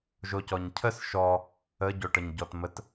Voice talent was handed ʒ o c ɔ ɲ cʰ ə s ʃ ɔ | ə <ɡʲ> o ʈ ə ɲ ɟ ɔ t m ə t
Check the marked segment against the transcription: incorrect: ɟ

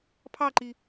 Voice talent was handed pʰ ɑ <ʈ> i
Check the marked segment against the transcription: incorrect: ǃ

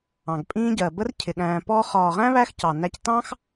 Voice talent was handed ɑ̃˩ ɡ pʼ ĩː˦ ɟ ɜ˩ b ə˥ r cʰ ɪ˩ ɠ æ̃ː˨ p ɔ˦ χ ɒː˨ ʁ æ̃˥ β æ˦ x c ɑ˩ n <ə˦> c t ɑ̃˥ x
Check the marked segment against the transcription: incorrect: æ˦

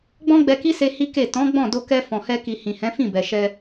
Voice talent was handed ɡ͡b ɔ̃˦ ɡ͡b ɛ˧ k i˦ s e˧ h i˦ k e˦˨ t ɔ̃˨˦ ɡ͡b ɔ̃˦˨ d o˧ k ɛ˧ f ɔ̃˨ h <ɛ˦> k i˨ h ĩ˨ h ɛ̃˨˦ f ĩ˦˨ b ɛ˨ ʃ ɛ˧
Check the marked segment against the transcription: incorrect: ɛ˧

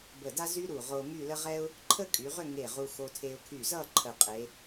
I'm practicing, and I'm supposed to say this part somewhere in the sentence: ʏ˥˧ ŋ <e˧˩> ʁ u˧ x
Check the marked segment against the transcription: correct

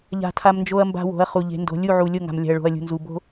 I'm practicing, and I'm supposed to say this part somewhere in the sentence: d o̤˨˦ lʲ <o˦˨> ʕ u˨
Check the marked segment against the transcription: incorrect: u˦˨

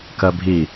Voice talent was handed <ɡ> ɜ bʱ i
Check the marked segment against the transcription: incorrect: k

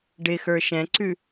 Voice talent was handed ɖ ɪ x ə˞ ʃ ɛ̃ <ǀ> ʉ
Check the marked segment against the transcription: correct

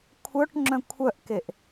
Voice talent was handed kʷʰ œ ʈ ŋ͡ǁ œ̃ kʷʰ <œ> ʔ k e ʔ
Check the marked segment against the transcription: correct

